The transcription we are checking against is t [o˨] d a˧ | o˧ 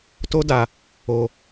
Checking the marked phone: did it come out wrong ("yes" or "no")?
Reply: yes